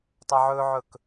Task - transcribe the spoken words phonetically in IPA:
tˤ a ʕ ɵ ʕ ɵ k

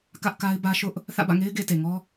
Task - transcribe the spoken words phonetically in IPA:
k ä˦ ʔ k a˦ ɪ̯ b ä˦ ʃ ʊ˦ ʔ | θ ä̰˦˨ b ä̰˦˨ ŋ e˦ ɪ̯ ɡ e˨ t e˨ ŋ ɔ˦

